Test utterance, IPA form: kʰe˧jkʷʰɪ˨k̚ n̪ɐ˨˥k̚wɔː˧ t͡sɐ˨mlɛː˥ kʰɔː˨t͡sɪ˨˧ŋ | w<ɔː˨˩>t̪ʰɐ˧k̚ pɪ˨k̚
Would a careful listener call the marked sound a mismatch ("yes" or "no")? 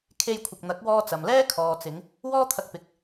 yes